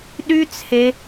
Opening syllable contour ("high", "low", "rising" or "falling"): high